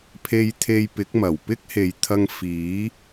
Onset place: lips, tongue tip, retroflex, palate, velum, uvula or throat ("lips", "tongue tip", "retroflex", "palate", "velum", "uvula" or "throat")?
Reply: lips